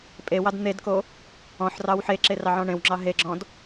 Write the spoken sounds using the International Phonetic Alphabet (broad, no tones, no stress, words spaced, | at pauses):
pʼewɑd n̪edko | ɔ̃ħ rɑwħeǁe rɑʕɔ̃ɳẽwŋ͡ǁɑ ɦeɡ͡ǁɔ̃d